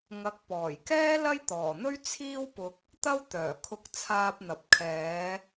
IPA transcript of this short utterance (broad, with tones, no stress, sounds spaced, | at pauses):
ŋ ɐ˨˥ k̚ p ɔː˨˩ j k ɛː˥ l ɐ˥ j t̪ ɔː˨˩ n̪ ɵ˥ ɥ t͡sʰ iː˥ w p ʊ˧ k̚ | t̪ ɐ˥ w t̪ œː˨˩ kʰ ʊ˧ k̚ t͡sʰ aː˧ p̚ n̪ ɐ˨ p̚ kʰ ɛː˨˧